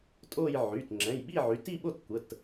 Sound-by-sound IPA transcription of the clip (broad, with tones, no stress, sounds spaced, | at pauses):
tʼ o˥˧ j ʕ y˩˧˩ t ŋ͡ǁ ɛ̃˩˧˩ j ɓ i˥˧ ʕ y˩˧˩ t i˥˧ ɓ o˥˧ t kʷ ə˩˧˩ t